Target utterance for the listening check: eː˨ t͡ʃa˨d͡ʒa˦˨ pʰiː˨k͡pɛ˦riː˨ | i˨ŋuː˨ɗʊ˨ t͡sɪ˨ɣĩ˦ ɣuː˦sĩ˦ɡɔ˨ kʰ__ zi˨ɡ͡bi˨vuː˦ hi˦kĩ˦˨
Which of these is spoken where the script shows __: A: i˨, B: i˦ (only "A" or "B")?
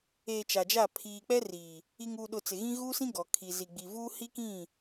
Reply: A